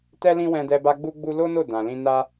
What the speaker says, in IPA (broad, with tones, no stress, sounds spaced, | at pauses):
t ɛ˦ l ĩ˦ w ɛ̃˧ d ɛ˧ b a˦ ɡ͡b u˦ ɡ͡b u˦ l o˦ n o˦˨ d ã˨ l ĩ˧ n a˦